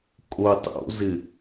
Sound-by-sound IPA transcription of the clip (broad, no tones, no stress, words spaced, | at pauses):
kʼo tˤo̰zɪ